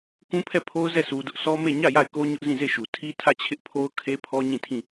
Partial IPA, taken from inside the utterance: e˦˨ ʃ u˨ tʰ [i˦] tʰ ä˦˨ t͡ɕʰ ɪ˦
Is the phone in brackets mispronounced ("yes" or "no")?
no